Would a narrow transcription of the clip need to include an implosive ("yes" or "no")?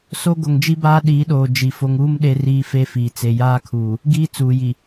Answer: yes